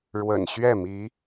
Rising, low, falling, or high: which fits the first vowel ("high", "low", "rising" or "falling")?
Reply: low